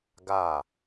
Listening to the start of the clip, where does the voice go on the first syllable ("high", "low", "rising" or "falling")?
falling